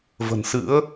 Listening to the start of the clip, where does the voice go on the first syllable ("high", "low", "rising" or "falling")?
low